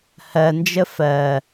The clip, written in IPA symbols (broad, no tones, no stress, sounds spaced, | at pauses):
h ɜ n d͡ʒ ə f ɜ